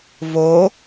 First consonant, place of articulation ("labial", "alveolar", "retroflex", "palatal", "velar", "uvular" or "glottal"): labial